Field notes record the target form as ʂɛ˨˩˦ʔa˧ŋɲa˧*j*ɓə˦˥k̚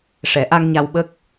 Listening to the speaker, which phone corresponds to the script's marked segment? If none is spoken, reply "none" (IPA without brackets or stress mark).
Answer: w